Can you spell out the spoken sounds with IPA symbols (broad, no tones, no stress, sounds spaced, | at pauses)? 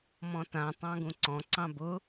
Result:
m ɔ̃ t ã tˤ ɑ̃ ɡ ũ ǀ ɔ̃ ǀ ɑ̃ b ʊ